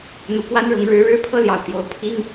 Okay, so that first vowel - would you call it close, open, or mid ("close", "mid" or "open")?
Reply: close